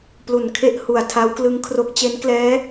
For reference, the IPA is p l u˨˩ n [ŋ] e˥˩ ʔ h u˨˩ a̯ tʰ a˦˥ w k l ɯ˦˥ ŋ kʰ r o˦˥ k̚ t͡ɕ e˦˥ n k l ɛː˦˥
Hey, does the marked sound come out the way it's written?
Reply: no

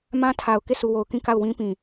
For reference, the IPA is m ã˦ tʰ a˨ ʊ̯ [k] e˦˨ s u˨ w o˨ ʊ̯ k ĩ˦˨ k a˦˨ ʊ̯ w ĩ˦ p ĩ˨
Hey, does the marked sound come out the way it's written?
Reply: yes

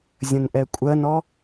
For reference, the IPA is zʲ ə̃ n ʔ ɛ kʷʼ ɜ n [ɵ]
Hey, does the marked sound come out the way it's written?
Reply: no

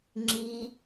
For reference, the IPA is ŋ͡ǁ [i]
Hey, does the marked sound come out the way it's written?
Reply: yes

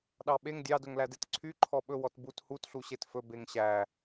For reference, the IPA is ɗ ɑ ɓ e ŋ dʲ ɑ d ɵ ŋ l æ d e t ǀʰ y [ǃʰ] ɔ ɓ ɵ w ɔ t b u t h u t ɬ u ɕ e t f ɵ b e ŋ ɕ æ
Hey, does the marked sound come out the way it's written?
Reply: yes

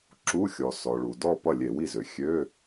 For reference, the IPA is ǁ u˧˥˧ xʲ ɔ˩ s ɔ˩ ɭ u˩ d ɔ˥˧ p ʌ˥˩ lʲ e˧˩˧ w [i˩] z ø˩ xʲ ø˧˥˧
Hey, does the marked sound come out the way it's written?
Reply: no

